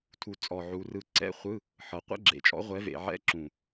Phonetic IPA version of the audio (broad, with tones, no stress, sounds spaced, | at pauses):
tʰ u˨˩ t͡sʼ ɔ˨˩ ʕ u˩˧ r ɯ˨˩ ǀ ɛ̰˧˥˧ χʷ ɯ˧˥˧ | ħ ɤ˩˧ qʷ ɛ̰˧˥˧ ɡ͡ǁ ḛ˨˩ t͡ʃʼ ɔ̰˨˥ ʁʷ ɛ˨˥ v ḛ˩˧ ʕ ɛ̰˧˥˧ ǁ ũ˨˩